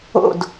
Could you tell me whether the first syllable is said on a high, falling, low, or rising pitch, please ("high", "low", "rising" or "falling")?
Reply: falling